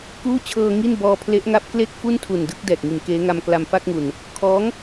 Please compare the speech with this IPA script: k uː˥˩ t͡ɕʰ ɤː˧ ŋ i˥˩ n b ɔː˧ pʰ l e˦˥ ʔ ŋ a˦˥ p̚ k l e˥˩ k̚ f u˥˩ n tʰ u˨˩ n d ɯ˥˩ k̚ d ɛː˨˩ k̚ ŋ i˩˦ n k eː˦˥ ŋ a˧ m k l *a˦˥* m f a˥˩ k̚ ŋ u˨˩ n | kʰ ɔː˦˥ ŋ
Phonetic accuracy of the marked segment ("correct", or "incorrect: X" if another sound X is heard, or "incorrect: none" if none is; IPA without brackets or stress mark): incorrect: a˧